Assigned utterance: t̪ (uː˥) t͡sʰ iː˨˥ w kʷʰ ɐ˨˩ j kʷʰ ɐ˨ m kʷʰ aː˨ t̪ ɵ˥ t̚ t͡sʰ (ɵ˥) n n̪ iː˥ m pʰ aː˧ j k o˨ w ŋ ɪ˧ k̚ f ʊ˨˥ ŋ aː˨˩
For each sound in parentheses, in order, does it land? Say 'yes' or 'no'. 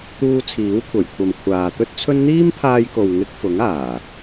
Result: no, yes

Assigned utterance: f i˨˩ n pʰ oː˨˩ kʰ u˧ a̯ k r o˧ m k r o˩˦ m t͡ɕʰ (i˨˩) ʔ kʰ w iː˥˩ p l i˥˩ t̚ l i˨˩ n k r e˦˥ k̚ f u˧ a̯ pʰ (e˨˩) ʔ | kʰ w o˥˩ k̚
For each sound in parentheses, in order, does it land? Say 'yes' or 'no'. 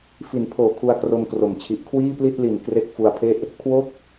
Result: yes, no

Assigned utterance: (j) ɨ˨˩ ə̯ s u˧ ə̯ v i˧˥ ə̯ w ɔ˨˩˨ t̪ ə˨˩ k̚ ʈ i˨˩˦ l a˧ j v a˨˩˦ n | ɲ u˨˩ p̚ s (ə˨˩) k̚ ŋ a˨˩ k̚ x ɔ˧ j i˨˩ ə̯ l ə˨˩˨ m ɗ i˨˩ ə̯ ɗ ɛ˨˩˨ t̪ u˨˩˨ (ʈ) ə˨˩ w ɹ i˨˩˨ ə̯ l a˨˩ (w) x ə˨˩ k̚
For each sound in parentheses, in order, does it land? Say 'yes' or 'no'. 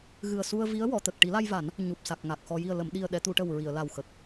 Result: no, no, yes, yes

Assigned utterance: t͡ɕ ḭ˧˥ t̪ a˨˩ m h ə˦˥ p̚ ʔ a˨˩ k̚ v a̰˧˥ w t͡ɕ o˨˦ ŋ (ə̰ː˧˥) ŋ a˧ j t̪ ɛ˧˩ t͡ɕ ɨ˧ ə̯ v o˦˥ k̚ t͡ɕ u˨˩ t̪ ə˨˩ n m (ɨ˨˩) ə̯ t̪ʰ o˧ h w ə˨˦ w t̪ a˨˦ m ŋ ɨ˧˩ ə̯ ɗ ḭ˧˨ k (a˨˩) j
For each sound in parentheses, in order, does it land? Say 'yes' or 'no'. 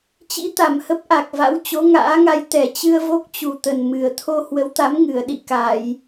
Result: no, yes, no

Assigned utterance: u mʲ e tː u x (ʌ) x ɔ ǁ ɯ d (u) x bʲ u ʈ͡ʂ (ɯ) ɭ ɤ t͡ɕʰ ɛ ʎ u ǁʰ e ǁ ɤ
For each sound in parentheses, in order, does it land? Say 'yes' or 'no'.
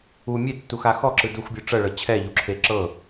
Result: no, yes, no

